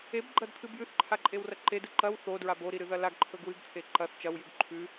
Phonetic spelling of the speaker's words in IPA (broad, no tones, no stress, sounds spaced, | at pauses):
e b ɡ͡ǃ ɐ d t̪ʰ ɨ b j ʉ θ ǃʰ a ǃʼ e w r ɐ ǃ e d ɨ ǃ ɐ w θ o d ɹ a b o ɾ i ɾ ɨ ð ɐ l a ɡ ǃʰ ɵ ɡ w ɨ ɡ t̪ʰ e ǃ ɐ θ t͡ʃ ɐ w j ʉ ɡ ǃʰ ʉ